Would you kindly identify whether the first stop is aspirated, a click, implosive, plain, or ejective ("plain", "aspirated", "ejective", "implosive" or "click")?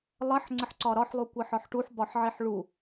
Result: click